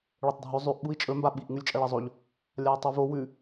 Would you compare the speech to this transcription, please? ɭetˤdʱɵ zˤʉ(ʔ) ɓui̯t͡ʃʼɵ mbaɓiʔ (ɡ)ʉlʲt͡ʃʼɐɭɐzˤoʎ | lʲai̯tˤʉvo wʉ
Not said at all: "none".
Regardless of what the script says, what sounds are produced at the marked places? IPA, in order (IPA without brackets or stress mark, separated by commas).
ʔ, ŋ